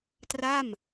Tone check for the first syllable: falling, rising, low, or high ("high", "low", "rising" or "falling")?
falling